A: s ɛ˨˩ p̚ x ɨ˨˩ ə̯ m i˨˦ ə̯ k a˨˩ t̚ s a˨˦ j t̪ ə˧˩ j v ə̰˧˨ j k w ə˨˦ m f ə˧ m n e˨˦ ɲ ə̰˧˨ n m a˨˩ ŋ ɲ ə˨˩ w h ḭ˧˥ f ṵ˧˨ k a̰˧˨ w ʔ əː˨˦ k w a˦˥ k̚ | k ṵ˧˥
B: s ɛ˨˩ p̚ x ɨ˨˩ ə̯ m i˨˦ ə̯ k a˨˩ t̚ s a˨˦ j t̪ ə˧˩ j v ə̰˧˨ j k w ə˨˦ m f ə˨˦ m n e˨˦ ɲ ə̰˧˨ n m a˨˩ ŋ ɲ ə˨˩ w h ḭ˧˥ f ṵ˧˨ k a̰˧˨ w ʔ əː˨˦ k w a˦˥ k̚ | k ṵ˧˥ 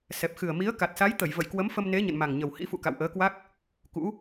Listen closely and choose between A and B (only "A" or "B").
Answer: A